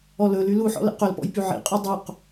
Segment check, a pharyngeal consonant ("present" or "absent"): present